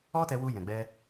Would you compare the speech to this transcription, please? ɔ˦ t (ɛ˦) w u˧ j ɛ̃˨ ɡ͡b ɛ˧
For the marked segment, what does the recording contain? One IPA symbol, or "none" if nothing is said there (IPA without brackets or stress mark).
ɛ˧